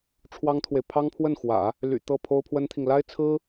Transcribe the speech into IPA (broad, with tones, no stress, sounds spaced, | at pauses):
ʈ͡ʂʰ w ɑ˥ ŋ t̪ʰ w e˨ ɪ̯ pʰ ɑ˥ ŋ pʰ w ə˥˩ n x w ä̰˨˩˦ | l y̰˨˩ t̪ ɤ˥˩ pʰ o˥ ʊ̯ pʰ w ə˥ n t̪ʰ i˨ ŋ l a˥ ɪ̯ t͡sʰ ɹ̩˥